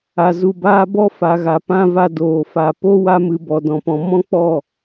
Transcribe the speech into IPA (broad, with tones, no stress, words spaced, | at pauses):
a˨zu˨baː˧ bɔ˦fa˨ɣa˨pã˧ va˧doː˨fa˨ po˦wa˧mɨ˨ bɔ˨dɔ̃˨pɔ̃˨ mɔ̃˦k͡pɔ˦˨